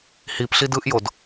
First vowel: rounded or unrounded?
unrounded